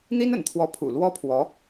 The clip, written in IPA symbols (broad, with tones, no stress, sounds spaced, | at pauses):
n̪ i˥ n ə̰˨˩ n t̪ʰ w ɔ˧˥ pʰ ṵ˨˩ l w ɔ˥ pʰ w ɔ˧˥